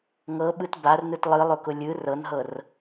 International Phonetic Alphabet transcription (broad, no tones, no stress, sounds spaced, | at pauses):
ŋ ɤ ɓ ɯ t b a r n ɯ t lˠ ɯ lˠ ʊ k ʊ lʲ ɯ r ɤ n ɦ ɤ r